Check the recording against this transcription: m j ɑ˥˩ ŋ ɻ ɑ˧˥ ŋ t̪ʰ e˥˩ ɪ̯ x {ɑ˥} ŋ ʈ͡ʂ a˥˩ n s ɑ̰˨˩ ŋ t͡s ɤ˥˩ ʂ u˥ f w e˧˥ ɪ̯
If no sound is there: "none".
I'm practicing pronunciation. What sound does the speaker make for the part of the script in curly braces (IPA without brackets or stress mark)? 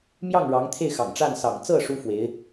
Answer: ɑ̰˨˩